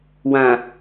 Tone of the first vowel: low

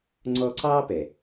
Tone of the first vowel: high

